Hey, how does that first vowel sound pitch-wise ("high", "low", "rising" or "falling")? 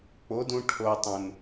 rising